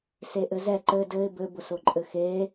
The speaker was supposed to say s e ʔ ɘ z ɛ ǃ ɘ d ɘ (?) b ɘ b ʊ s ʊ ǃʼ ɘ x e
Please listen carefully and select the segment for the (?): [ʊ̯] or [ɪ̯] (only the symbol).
ɪ̯